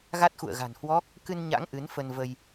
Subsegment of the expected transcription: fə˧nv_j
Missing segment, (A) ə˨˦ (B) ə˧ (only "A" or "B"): B